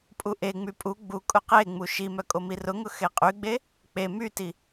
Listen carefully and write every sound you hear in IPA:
pʼ u ʔ e ŋ͡m y pʼ u ɡ͡b u kʼ ʊ q e ŋ͡m u ʃ i m œ kʼ o m i r ʊ ŋ ʊ x e qʼ y ɡ͡b e | k͡p e m y t i

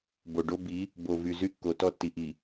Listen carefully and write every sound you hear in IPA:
b o˨ ɖ o˦ b i˨˦ | b o˨ v y˨ z y˦ kː o˨ t ɔ˦˨ tː i˨ ʔ i˨

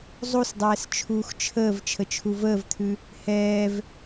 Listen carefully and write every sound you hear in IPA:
zˤ u s dˤ ɛː s t͡ʃʰ uː x t͡ʃʰ əː v t͡ʃʰ ə t͡ʃʰ u v əː v t̪ʰ ʉ | h ɛː v

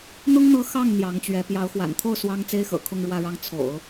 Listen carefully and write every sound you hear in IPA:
n̪ ʊ˥ ŋ n̪ ɤ˧˥ x ɑ˥˩ ŋ n̪ j ɑ˧˥ ŋ t͡ɕ ɥ ɛ˧˥ p j ɑ˧˥ ʊ̯ x w a̰˨˩ n t̪ʰ o˥˩ ʊ̯ s w ɑ˥ ŋ t͡s e˥ ɪ̯ x ɤ̰˨˩ kʰ ʊ˥˧ ŋ ɻ w ä˥˧ ɻ ɑ˥˩ ŋ t͡sʰ o̰˨˩˦ ʊ̯

